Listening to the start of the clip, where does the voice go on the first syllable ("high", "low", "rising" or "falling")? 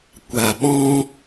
low